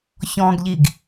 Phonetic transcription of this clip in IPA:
ç ɔ̃ ɡ ʎ i ɡ

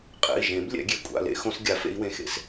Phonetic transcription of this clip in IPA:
qʼ ɛ̰˩˧˩ i̯ ʒ ẽ˨˩˦ b lʲ ɛ̰˨˩˦ ɡʲ e˩˧˩ kʷʼ a̰˩˧˩ l ḛ˨˩˦ x õ˨˦ s ɡʲ a˨˩˦ f ḛ˨˦ i̯ w ẽ˩˧˩ x ḛ˨˦ s

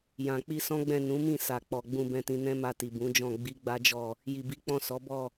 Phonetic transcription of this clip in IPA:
j ã˨ k͡p i˧ s ɔ̃˦ ɡ͡b ɛ̃˦˨ n ũ˨˦ m ĩ˦˨ s a˨ k͡p ɔ˨ ɡ͡b ũ˧ b ɛ̃˧ t ĩ˧ n ɛ̃˦ m a˧ t i˨ b ũ˨˦ d͡ʒ ɔ̃˦˨ ɡ͡b i˨˦ ɡ͡b a˦ d͡ʒ ɔ˦˨ | j i˨ b i˨˦ k͡p ɔ̃˦˨ s ɔ˨˦ b ɔ˦˨

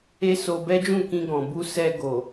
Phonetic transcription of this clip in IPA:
e˦ s o˧ b ɛ˦ d͡ʒ ũ˦˨ k ĩ˧ ɡ ɔ̃˨ b u˧ s ɛ˧ ɡ o˨

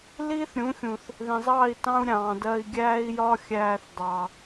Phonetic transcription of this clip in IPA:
l iː˦ θ ɾʲ ũ˨˦ xʲ ũ˨ θ | ð ĩ˨ zˤ ɑː˦˨ i̯ t ɑ̃˦ u̯ ɾʲ ɑ̃ː˨ d ɜ˧ i̯ ɡʲ æː˦ i̯ j ɒ˦ xʲ æː˧ θ dˤ ɑ˨

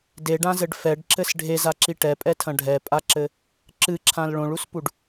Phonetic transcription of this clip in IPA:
d e ɖ ã z ɘ ɖ f ɛ ɖ ǁ ɘ s ɖʱ e z a ǁ i ʈ ɛ pʼ ɛ tʰ ɐ̃ ɖʱ ɛ pʼ a ǁ ɘ | ǁ ɨ ǁʰ ã l ɭ õ ɭ u s p u ɖ

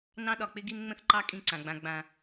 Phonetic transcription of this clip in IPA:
n ɑ̃˦ ɗ ɒ˨ k͡p ɪ˦ ɡ i˦ n ŋ͡m ə̃˦ θ ǃ ɑ˦ kʼ ĩ˦ ǀ ã˨ ɡ͡b ã˧ ɡ͡b ã˨

